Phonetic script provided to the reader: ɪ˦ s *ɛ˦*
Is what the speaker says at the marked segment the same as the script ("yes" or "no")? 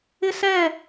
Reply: no